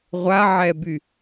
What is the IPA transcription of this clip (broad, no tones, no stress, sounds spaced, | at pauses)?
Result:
ʁʷ a ʕ ɛ b y